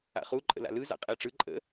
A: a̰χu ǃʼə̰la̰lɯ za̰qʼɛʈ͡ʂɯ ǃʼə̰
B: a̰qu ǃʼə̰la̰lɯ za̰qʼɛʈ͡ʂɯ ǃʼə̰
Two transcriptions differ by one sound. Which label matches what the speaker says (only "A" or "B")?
A